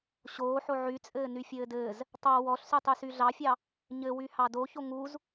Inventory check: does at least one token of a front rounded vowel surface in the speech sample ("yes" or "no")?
yes